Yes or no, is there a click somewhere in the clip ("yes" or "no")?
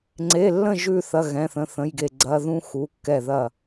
yes